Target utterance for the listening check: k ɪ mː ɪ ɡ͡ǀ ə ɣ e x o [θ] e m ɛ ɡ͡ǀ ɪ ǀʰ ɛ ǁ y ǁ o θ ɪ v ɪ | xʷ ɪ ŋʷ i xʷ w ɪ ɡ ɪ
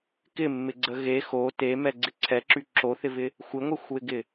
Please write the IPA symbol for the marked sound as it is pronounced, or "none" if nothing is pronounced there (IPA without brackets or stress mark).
t